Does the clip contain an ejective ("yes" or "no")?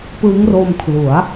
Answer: no